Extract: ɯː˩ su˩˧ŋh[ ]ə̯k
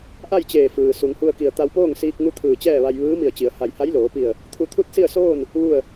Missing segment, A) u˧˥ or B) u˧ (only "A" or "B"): B